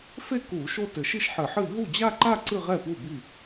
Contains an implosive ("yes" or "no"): no